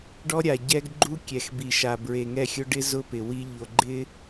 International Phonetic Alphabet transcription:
ɖɔ˦ɾʲa˨ ɟɛ˦ɡɡ͡ǃu˦ kʲɛ˨xbi˨ʃa˨ bɹe˨ŋɛ˦˨xʲʊ˦ ɖɪ˦zʊ˦ pɪ˨wi˦ ʎo˨ɡ͡ǃɪ˦

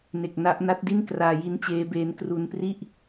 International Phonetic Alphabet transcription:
ne˨˩k̚na˦˥ʔna˦˥t̚di˥˩n kraː˧ji˦˥nt͡ɕeː˦˥beː˦˥n kru˧npri˥˩ʔ

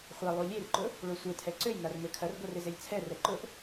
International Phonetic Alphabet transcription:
χʷɛlˠu lʲerǃʊ | ɭʊsʷɪtʰɛ ǀøjnar møkʰɐrɡʷɛr ɪzelʲt͡sʰɛrɛ ǃʊʔ

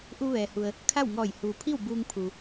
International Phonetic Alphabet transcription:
ʔu˧ʋɛː˩hu˩ə̯ | kʰa˥˨wŋɔː˧˩j huː˩pʰi˥˨w buː˧ŋpʰu˩

